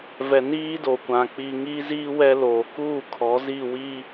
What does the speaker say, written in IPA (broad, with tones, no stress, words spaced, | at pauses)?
vɛ˨niː˦ do˨kʷã˨ k͡pi˨ŋiː˦ziː˦ wɛ˦loː˨ kuː˦˨kʰɔ˨˦ zi˦˨ wi˦